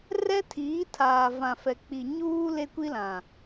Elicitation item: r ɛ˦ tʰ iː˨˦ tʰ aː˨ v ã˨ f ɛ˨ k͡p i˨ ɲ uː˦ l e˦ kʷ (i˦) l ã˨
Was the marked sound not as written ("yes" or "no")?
no